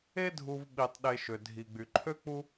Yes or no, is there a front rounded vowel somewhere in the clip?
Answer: yes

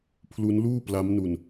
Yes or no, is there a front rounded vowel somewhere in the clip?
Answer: no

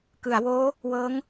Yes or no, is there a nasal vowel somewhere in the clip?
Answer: no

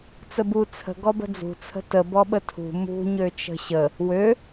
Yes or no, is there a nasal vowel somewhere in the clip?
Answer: no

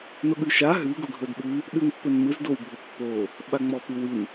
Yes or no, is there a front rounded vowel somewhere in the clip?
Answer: no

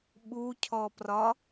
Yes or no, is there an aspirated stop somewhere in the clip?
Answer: yes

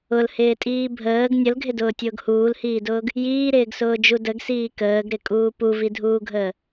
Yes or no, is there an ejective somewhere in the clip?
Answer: yes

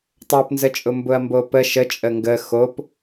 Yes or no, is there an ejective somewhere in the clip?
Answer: yes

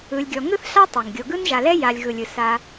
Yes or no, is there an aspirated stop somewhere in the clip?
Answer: no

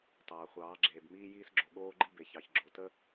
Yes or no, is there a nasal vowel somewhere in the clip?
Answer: no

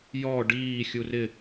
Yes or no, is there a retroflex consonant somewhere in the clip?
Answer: yes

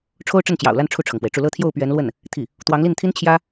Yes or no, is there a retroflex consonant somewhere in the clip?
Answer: yes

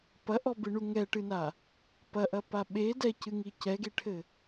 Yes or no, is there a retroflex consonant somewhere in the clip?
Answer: yes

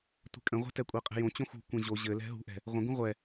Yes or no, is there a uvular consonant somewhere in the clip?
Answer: yes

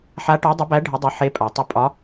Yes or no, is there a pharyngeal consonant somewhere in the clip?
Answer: yes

